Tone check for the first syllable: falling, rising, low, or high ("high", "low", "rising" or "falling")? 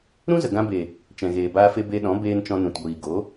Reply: high